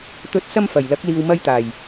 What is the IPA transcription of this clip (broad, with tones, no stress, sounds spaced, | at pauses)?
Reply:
t̪ ɵ˨˥ t̚ s ɐ˧ m f ɐ˨˩ j l ɐ˨˥ k̚ l iː˨ w m ɐ˧ j t̪ aː˨˩ j